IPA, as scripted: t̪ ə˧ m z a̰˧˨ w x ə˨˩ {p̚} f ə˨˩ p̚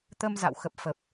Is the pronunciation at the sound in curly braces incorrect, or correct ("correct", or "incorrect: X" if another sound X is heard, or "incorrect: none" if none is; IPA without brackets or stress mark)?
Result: correct